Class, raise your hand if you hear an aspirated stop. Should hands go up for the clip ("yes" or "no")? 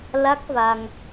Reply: no